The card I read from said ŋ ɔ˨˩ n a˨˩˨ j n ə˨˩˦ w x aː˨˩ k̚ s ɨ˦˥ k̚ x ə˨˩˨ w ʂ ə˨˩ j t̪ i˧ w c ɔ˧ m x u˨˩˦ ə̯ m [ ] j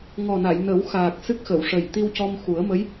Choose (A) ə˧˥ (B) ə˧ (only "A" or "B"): A